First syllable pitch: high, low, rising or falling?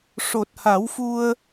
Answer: low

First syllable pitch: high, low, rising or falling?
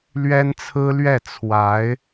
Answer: high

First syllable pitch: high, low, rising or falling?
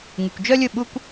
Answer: low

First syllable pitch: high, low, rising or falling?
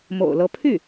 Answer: low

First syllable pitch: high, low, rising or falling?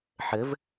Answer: rising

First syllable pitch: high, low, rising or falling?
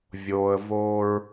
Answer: low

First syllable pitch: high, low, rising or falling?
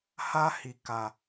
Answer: high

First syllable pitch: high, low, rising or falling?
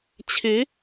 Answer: rising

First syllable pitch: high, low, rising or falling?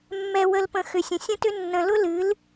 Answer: low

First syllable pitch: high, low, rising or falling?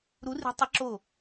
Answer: rising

